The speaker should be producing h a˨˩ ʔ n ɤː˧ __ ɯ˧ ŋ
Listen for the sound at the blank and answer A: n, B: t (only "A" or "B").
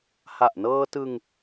B